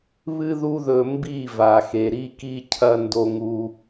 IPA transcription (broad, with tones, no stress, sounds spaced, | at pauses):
β ɨ˦ ð u˦ ð ɵ˧ m b i˦˨ v a˨ x e˨ ɾ i˦ k i˦ cʰ ɐ˦ n d o˧ ŋ u˧